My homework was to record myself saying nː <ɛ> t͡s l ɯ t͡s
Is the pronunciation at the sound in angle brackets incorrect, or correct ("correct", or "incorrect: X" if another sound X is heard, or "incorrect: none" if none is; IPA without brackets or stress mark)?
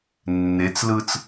incorrect: e